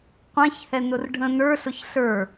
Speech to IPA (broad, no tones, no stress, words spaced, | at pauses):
qʷɛ̃çhɛnʊr ɖʱə̃ nə˞ɬʊç ɬə˞